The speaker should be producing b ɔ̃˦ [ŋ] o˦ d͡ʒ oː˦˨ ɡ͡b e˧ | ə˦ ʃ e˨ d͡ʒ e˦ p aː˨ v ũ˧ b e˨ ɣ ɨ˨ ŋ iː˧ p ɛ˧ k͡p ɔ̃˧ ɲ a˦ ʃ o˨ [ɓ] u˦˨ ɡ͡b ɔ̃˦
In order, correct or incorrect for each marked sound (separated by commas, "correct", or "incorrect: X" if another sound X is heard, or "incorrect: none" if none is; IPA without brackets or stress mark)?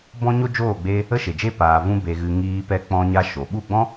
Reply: incorrect: ɲ, correct